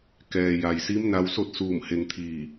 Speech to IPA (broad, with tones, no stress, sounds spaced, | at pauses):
k ɛː˩ j a˩ j s i˧˥ m n a˧ w s o˥˨ t̚ s uː˧˩ m h e˧ ŋ t̪ʰ iː˧˩